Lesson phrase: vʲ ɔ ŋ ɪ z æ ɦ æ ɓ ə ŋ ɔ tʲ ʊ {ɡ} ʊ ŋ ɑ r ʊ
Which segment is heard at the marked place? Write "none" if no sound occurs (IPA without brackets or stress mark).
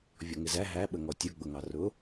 ɡ͡b